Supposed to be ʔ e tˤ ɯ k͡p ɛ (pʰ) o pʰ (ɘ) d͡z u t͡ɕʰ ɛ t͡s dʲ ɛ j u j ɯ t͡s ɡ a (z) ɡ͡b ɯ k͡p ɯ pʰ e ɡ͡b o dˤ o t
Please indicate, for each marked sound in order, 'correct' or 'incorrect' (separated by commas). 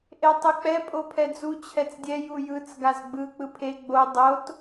incorrect, incorrect, correct